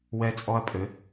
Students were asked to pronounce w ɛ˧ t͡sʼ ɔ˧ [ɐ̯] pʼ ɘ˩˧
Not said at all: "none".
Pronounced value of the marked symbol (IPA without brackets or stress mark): ɐ̯